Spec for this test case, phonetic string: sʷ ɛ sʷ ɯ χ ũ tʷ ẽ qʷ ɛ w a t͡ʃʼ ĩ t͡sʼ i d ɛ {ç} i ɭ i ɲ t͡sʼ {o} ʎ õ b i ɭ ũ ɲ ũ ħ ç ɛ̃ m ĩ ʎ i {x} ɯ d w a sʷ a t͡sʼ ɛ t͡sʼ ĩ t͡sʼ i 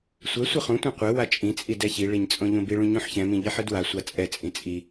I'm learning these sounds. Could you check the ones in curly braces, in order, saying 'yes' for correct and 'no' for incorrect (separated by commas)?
yes, no, no